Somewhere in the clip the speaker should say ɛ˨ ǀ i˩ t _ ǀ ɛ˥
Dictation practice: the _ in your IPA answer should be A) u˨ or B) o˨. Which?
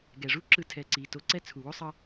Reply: B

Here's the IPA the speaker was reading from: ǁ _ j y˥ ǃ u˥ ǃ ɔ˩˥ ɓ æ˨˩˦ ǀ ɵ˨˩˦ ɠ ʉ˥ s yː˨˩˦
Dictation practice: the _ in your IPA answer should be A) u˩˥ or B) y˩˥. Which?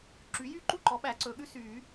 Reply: B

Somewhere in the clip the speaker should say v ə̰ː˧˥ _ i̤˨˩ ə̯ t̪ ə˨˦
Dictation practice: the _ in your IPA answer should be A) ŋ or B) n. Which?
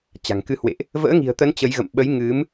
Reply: A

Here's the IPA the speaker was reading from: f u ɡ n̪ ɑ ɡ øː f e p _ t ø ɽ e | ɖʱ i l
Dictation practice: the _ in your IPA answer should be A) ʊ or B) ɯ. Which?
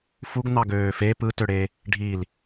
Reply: B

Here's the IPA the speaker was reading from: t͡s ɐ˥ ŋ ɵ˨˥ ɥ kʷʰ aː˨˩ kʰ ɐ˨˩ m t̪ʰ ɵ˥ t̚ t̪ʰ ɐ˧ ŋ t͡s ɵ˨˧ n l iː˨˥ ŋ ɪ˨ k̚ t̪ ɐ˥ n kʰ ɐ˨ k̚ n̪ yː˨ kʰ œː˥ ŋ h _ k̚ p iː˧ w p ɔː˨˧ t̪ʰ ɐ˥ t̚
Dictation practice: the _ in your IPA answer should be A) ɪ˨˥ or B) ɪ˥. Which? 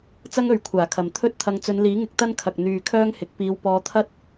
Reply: A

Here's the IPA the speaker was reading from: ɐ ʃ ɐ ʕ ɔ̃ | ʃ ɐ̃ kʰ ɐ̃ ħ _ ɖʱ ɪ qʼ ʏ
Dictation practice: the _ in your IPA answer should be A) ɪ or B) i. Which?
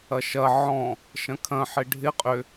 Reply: A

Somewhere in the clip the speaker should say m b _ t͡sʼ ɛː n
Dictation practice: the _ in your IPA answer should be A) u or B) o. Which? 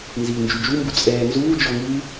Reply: A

